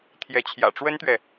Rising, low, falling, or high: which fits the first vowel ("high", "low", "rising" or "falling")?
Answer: rising